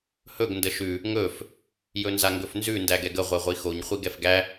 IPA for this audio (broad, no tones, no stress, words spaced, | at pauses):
hɵɡ ndəʃʉ | ŋɵf | jɵnzaŋɡɵfnzʉ ndæɡɛɡə ʁʷɛʁʷixoɲ χʷiɡɛfɡæ